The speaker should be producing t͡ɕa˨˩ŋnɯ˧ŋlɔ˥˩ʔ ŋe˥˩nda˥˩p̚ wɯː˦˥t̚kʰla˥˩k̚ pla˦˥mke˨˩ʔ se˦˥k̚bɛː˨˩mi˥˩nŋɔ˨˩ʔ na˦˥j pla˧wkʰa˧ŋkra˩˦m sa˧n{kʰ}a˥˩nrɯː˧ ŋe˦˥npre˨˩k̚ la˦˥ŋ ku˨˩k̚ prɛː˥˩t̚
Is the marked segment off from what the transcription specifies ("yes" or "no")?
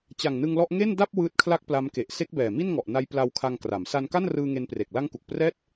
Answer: yes